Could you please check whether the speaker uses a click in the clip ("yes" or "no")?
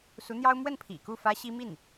no